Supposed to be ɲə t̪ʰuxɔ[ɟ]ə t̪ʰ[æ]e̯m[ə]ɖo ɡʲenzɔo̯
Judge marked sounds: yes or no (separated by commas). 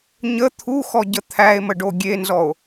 yes, yes, yes